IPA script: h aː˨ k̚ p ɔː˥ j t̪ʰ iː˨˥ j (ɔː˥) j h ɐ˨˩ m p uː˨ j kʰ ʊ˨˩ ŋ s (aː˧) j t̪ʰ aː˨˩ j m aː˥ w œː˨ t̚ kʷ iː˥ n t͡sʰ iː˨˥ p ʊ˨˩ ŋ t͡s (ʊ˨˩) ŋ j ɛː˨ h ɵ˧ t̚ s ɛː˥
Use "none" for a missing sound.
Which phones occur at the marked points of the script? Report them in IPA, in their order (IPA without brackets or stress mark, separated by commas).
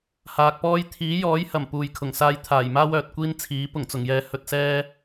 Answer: ɔː˨˥, aː˧, ʊ˨˩